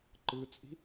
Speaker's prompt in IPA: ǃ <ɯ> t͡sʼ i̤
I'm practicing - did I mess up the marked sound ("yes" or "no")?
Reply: no